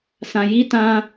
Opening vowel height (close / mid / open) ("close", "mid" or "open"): open